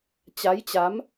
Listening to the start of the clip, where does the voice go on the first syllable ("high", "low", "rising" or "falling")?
rising